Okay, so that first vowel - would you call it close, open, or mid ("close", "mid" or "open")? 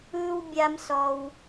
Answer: close